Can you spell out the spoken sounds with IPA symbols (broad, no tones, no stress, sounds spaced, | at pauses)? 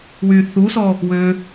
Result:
w y θ u s ɔ | w ø